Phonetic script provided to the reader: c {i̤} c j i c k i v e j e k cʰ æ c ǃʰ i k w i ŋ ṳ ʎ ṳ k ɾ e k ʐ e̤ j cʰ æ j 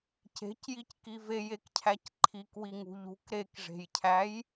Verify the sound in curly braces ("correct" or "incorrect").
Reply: incorrect